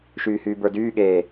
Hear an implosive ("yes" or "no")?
yes